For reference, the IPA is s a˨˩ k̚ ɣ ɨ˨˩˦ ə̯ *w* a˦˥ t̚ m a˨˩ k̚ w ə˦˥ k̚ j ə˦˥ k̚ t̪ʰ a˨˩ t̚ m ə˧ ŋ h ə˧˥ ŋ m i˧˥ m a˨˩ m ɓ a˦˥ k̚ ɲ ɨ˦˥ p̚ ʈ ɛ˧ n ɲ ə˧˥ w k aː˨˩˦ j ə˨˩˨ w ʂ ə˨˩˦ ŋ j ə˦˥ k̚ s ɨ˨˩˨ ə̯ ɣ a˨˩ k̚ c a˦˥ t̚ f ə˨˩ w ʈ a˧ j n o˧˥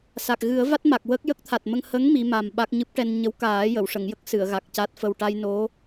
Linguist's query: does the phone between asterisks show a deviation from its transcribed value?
yes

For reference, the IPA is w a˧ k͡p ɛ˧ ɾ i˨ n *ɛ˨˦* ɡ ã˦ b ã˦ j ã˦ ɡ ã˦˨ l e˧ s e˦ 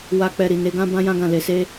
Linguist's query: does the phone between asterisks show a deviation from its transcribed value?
yes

